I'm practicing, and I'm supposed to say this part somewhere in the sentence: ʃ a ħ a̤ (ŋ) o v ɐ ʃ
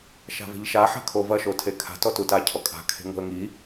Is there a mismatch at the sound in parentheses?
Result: yes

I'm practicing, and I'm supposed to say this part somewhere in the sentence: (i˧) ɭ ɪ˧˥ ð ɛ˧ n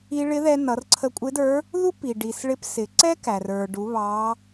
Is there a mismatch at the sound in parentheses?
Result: no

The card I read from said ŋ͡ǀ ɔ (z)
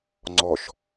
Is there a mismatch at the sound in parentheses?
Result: yes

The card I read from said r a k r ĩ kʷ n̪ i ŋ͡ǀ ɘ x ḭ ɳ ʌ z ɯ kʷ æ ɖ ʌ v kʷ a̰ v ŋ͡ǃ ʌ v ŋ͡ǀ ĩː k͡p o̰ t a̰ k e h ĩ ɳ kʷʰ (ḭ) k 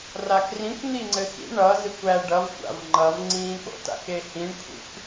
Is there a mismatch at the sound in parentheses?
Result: no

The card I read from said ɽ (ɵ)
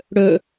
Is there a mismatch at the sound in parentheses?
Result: no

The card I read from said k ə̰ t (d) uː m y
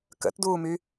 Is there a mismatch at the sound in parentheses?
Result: no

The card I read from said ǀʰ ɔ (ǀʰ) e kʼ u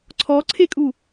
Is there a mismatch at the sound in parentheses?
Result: no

